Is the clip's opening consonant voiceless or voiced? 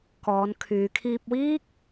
voiceless